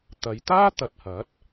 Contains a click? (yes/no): no